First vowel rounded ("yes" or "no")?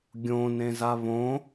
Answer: yes